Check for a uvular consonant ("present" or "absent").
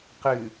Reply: present